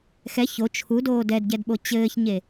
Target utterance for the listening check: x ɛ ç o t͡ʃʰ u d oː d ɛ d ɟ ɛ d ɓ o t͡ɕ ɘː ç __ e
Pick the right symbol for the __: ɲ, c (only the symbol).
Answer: ɲ